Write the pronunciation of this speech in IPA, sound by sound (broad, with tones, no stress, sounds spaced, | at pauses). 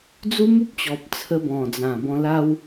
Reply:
d͡z u˦ m u˦ p̚ t͡ɕ ɔ˨ p̚ t͡sʰ ə˧ b ɔ̃˨˩ d͡z ã˨˩ b ɔ̃˧ l a˦ w